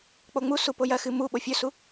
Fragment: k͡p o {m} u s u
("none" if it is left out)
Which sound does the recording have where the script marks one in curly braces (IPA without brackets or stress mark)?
ŋ͡m